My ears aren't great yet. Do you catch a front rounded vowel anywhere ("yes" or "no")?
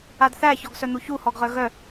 yes